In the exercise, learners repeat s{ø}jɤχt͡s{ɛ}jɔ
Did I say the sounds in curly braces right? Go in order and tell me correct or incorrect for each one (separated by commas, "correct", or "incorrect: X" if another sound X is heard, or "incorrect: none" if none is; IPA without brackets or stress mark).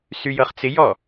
incorrect: y, incorrect: ɪ